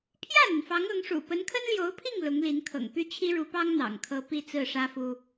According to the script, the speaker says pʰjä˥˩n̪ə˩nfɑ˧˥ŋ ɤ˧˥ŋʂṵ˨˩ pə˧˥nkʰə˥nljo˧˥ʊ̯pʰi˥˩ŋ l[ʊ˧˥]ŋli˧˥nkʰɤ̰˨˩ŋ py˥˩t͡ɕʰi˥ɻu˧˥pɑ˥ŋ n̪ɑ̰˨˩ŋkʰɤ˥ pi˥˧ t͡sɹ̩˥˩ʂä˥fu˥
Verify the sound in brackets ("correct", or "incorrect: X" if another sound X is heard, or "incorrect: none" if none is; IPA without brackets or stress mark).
correct